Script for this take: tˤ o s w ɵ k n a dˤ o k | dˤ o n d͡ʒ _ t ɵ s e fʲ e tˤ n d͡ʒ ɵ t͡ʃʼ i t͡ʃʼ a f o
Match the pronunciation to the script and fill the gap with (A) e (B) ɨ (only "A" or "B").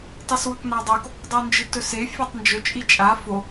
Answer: B